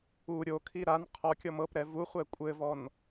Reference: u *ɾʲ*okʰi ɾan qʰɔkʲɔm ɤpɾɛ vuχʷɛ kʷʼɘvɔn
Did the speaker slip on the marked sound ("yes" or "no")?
no